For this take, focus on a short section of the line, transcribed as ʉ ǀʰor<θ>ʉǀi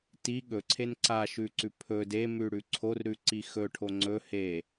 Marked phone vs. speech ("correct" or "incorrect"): incorrect